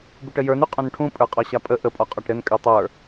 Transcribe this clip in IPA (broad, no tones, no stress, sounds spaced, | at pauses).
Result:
b u ʈ ə j ə˞ n y qʼ ũ n ʈʰ ũ pʼ ə˞ qʼ ɒ ɕ a pʼ ə ʔ ə pʼ ɒ qʼ ɒ ʈ ɾ ɘ n kʼ y tˤ ə˞